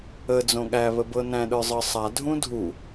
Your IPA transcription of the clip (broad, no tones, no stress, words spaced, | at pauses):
ə d͡zõɠæ βəbɤnæ̃ ɗə˞zˤɤsˤa dʱũdʱu